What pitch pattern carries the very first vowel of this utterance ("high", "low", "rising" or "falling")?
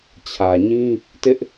low